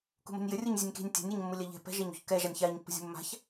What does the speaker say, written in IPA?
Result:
k ṳ m ə̤ nʲ j ɘ rʲ u ɲ zʲ ɛ nʲ k i̤ nʲ tʲ a̤ nʲ ɛ ɲ mː u lʲ a ʎ ɛ̤ p ɛ̤ ʒ ɛ ɲ ṳ ç k ɛ ʒ a nʲ ç a ɲ pː ə̤ zʲ ṳ mː a̤ ç

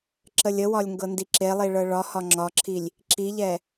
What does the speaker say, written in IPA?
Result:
ǁ ə lʲ ə w ɒ lʲ ŋ ɡ ɤ n d i ǁ e lˠ i ɭ ɤ ɭ ɒ h ɒ ŋ͡ǁ ɒ ǁʰ i lʲ | ǁ i ʎ ɛ

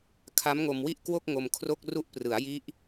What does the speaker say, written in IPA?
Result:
kʰ a˦˥ m ŋ o˧ m w i˥˩ ʔ k w o˥˩ k̚ ŋ o˧ m kʰ r o˥˩ k̚ r u˦˥ ʔ p r ɯ˩˦ a̯ j i˦˥ ʔ

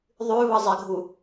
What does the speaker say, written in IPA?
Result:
ðˤ ʉ β ɤ zˤ ɪ ɡʱ u

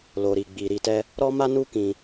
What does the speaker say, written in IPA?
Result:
l o˨ ɾ i˨ ɡ͡b i˨ ɾ i˧ t ɛ˦ | ɾ ɔ˦ m a˦ n u˦ k ĩ˧

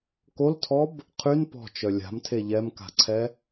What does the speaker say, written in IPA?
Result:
k o l tʰ ɔ b | qʰ y n p ɔ̤ t͡ʃ œ lʲ a̤ m tʰ e ʎ ɛ m k a̤ ǀʰ ɛ

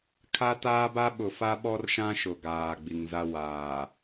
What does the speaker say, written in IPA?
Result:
kʰ a˦ t aː˦ b a˦ ɓ ʊ˨ f a˦ ɓ ɔ˦ r ʃ ã˦ ʃ ʊ˨ ɡ aː˨ ɡ͡b i˨ ŋ z a˦ w aː˨

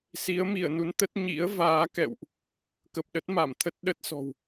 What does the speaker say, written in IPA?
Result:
s i˨˦ ə̯ m i˧˩ ə̯ n u˨˦ n t̪ ə˦˥ t̚ ɲ ḭ˧˥ ə̯ v aː˨˦ k ɛ̰˧˨ w ʔ | k ə˨˩ p̚ ɗ ə˦˥ t̚ m a˧˩ m t̪ʰ ə˦˥ t̚ ɗ ə˦˥ t̚ s ɔ̤˨˩ w

